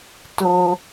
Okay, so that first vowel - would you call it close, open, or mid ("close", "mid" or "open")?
mid